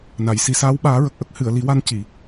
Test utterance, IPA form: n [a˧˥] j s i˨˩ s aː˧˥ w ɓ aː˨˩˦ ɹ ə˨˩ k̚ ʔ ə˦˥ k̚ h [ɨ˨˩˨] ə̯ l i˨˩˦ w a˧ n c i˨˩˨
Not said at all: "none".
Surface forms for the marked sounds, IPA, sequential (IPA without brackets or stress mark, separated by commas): a˨˩˨, ɨ˨˩˨